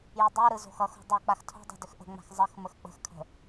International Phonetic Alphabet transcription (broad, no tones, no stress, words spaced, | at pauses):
jʏdˤoɾɯ zo̤xʌxo̤ dˤɯ k͡paxtʰo̤dˤo̤ dʏxʔə̤ŋ͡ma̤x zˤəx məxk͡pə̤xkʰə̤